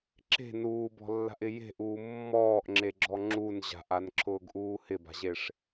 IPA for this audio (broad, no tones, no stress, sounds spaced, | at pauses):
ǁ e̤ n uː b ɔ̤ lː a̤ ʔ ɪ j e̤ ʔ uː mː ɔː ʔ ŋ͡ǁ e ɡ͡ǁ ɔ ŋ͡ǁ u n ʑ a̤ ʔ a n ǁʰ ʊː ɡ ʔ uː h ɪ b a̤ ʑ e ʂ